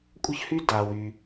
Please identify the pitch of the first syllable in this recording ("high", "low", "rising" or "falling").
high